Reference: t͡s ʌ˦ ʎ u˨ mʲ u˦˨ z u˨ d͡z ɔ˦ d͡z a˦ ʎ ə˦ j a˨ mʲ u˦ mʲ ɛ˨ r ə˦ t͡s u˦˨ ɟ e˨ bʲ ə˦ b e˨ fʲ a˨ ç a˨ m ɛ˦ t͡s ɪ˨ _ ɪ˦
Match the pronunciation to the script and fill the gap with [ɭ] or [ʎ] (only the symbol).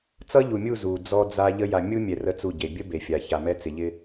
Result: ʎ